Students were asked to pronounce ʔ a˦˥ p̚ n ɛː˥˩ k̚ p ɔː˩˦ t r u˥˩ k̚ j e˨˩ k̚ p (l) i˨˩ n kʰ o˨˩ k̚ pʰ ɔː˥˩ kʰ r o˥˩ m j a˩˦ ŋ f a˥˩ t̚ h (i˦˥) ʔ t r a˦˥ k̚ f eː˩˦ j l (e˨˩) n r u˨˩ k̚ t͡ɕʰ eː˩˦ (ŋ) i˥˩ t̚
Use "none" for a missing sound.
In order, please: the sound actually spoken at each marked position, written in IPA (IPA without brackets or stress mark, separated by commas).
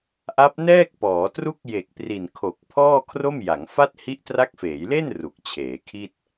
r, i˦˥, e˥˩, kʰ